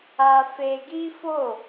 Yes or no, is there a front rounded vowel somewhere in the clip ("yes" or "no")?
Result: no